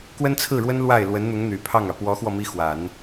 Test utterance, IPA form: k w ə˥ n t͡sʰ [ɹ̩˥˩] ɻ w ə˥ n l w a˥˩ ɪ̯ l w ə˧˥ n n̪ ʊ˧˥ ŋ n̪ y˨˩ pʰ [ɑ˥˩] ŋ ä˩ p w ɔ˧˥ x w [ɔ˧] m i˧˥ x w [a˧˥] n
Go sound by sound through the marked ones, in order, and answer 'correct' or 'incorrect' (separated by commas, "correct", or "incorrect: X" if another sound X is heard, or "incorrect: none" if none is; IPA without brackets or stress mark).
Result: correct, correct, correct, incorrect: a˨˩˦